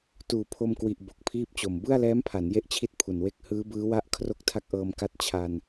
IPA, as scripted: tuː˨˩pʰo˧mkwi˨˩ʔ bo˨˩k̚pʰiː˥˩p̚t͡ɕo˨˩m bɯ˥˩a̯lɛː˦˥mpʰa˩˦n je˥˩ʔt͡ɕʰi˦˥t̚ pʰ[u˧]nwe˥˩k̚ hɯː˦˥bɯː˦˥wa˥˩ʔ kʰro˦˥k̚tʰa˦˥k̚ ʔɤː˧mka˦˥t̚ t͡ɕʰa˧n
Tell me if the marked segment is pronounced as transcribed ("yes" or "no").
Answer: no